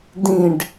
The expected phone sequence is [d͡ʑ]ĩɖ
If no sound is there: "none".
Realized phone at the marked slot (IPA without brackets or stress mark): d